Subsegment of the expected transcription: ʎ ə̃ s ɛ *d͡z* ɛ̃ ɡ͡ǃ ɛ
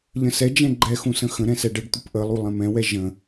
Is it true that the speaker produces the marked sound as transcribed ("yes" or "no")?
no